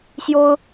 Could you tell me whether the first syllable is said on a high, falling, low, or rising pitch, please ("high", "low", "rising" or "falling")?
high